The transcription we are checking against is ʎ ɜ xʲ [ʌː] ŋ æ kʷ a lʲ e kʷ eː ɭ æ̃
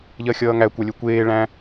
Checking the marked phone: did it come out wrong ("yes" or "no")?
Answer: no